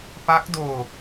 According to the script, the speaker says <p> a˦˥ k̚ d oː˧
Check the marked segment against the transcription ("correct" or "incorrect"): correct